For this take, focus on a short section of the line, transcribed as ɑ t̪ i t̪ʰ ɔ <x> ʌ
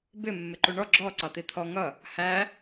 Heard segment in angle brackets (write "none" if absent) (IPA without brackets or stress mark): ŋ